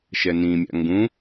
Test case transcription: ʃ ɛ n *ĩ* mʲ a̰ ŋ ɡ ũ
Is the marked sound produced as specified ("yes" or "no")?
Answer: yes